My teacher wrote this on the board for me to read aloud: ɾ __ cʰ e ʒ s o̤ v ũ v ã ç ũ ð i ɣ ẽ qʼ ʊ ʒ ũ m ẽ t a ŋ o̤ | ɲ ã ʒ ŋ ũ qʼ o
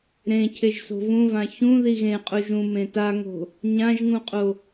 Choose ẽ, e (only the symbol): ẽ